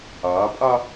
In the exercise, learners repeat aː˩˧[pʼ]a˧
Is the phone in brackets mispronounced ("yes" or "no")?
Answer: no